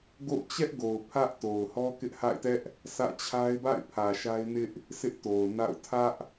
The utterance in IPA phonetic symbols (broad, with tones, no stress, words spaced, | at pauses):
ɡo̰˦˨ʊ̯ t͡ɕɛ˦ʔɡo˨ʊ̯ pʰä˦ʔto˨ʊ̯hɔ˦kɪ˦ʔ ha̰˦˨ɪ̯tɛ˦ʔ | sä̰˦˨t͡ɕʰa˦ɪ̯ ba̰˦˨ɪ̯pʰä˨ ʃa˦ɪ̯nɪ˦ʔ | sɪ˦ʔto˨ʊ̯na̰˦˨ʊ̯ tʰä˦ʔ